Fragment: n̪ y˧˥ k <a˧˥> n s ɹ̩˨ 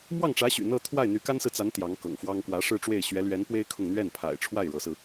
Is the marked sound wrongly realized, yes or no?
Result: yes